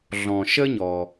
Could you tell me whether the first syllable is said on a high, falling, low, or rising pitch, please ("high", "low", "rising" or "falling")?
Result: low